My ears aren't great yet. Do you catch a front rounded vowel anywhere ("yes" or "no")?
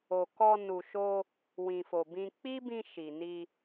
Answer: no